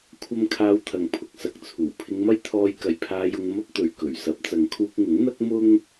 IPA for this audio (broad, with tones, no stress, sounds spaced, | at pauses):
kʷʰ ɐ˥ m kʰ aː˧ w t̪ʰ ɐ˨ ŋ pʰ ʊ˧ k̚ s ɐ˧ k̚ t͡sʰ uː˨˩ pʰ ɪ˧ ŋ m ɐ˥ j t̪ʰ ɔː˧ j k ɐ˨ j pʰ aː˧ j ʊ˧ ŋ m ɐ˥ p̚ t̪ ɵ˨ ɥ k ɵ˨˩ ɥ s ɐ˨˥ p̚ t͡s ɐ˨˧ ŋ kʰ uː˧ k̚ ŋ ʊ˨˥ ŋ n̪ ɐ˥ k̚ m ʊ˥ ŋ